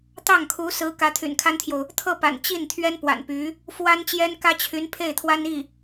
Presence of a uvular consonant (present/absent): absent